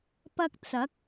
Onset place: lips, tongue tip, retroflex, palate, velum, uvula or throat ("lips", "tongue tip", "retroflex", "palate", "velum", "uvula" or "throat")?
lips